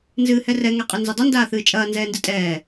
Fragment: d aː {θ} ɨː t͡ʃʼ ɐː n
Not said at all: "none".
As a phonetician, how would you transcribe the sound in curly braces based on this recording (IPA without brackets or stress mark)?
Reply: θ